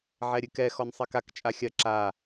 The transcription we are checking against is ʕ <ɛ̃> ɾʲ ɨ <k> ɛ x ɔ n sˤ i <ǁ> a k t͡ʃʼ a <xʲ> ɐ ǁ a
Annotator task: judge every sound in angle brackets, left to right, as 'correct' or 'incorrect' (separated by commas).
incorrect, correct, incorrect, correct